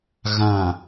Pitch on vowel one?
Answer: low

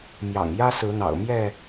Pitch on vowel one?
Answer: low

